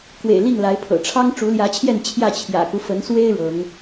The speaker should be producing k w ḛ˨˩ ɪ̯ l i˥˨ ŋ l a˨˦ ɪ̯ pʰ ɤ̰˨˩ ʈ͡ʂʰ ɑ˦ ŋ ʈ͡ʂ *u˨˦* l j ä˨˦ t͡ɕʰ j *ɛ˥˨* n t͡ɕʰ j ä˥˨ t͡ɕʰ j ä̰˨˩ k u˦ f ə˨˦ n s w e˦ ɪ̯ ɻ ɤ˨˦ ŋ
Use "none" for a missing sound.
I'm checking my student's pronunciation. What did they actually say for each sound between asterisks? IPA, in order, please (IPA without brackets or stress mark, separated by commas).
u˨˦, ɛ˥˨